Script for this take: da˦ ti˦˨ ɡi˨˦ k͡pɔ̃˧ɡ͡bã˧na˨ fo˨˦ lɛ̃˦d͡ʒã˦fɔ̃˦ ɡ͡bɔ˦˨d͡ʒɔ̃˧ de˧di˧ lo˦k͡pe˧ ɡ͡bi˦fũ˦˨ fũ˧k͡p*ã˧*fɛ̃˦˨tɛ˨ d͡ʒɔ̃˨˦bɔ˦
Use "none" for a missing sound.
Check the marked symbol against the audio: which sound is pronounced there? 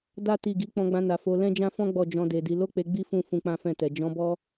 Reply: ã˦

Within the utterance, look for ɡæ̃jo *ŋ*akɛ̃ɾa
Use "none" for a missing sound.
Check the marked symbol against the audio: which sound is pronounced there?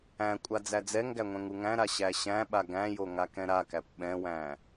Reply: ŋ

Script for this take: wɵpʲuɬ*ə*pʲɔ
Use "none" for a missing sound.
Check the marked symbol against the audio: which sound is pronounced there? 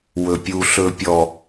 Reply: ɵ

